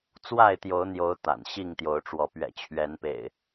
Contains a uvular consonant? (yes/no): no